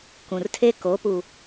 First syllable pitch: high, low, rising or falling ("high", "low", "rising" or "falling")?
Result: low